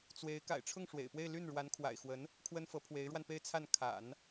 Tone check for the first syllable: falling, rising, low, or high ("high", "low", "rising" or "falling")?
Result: rising